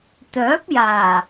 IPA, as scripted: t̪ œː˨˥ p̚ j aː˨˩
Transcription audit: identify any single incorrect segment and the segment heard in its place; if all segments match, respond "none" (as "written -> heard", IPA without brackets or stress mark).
none